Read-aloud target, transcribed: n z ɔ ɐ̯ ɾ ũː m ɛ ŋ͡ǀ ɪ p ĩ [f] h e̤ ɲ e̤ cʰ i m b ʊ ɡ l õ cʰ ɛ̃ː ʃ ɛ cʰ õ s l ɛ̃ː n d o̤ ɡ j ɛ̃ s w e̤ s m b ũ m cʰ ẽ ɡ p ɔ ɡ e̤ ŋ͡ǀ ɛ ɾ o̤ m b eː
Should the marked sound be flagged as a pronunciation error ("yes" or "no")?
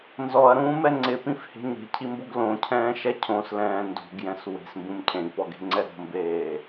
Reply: no